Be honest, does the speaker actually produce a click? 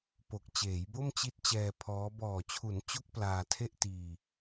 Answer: no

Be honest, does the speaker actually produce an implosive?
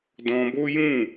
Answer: no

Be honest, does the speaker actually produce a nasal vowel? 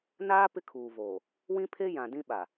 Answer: yes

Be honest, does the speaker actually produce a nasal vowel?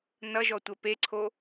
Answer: no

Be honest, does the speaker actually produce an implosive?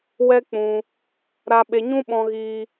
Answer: yes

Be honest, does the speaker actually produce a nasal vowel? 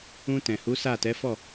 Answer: yes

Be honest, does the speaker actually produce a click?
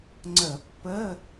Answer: yes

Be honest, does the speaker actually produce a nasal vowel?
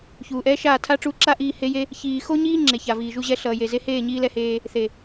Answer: no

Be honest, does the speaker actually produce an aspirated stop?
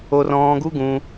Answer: no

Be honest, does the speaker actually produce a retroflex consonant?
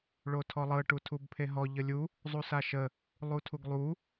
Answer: yes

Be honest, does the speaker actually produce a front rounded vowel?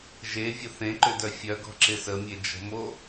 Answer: yes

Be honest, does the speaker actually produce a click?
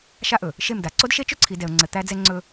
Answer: yes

